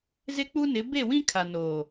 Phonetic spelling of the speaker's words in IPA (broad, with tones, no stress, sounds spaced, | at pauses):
z ɪ˦ k͡p u˦ n ɪ˨˦ b e˦˨ w ĩ˦ kʰ a˨ n oː˨